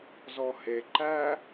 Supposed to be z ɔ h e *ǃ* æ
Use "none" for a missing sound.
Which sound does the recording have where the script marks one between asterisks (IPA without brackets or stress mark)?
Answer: ǃ